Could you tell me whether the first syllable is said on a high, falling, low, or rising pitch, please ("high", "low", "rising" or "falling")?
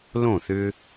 falling